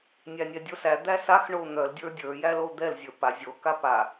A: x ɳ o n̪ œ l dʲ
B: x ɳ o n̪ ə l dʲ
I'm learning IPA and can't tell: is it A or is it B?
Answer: A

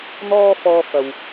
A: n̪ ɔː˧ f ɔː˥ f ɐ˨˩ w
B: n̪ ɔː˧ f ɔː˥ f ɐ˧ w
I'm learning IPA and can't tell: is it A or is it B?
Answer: B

